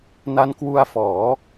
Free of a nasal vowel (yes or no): yes